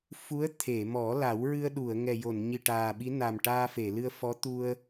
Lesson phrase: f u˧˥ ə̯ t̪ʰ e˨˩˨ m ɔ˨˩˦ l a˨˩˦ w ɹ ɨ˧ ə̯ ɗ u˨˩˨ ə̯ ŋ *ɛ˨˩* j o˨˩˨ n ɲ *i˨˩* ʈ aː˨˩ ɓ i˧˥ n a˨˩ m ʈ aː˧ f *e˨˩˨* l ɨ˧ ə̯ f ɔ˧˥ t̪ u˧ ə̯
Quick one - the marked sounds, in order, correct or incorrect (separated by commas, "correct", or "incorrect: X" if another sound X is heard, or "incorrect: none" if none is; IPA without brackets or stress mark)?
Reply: correct, correct, correct